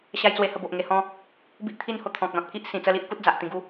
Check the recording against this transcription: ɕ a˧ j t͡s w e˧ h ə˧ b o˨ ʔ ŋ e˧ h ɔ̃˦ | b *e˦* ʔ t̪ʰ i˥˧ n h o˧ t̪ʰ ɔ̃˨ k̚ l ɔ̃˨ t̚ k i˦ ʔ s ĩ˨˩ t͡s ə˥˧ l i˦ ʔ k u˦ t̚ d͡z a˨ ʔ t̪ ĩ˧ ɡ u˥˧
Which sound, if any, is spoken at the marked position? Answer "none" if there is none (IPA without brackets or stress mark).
i˦